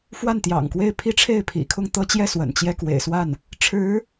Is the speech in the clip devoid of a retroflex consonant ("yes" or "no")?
no